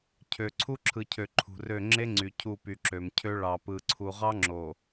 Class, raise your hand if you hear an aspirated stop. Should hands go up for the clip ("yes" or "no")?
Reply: yes